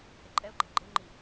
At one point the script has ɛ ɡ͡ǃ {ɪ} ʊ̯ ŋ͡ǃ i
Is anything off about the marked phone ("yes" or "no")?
no